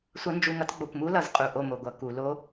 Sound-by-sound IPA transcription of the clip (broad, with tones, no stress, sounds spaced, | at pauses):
sʷ ʌ˦˥ n d͡ʒ u˦˨ ŋ ʌ˦˥ t ɡ͡b o˦˨ kʷ m u˦˥ l ʌ˧˩˧ z qʼ u˧˩˧ ʔ o˦˨ m o˧˩˧ ɡʷ ʌ˧˩˧ k u˧˩˧ l o˦˥